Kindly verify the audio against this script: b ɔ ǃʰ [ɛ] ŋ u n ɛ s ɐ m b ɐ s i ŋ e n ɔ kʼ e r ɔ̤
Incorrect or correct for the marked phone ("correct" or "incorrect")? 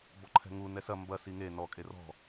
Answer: incorrect